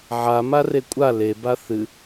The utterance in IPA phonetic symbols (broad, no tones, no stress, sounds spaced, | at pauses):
ʕ a m a r e kʷʼ a l e b a θ ɨ